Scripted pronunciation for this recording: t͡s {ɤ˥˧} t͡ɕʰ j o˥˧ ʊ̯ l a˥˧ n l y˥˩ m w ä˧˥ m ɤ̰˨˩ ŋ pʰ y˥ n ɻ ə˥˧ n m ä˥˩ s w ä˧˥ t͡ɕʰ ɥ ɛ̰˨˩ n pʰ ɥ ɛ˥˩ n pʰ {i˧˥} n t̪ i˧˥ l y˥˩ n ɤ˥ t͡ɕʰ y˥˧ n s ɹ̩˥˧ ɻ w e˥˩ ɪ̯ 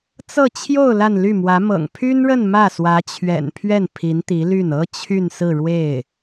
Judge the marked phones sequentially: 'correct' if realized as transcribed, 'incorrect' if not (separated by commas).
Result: correct, correct